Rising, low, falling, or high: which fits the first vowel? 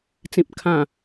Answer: low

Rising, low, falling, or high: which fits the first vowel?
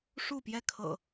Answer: falling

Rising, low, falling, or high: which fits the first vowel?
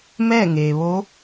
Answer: falling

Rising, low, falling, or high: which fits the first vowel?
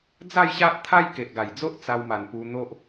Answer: falling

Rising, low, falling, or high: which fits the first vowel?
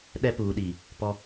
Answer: high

